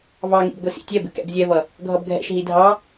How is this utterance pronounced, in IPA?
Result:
vɑŋḭb ɡʷisḭtʲɛbɪ kɛ̰bzʲɛvʌ | ɡʱʌbɡʱɛ̰ʃɦi dʱɑ

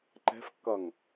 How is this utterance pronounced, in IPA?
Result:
ǃɛ̤fkːʌŋ

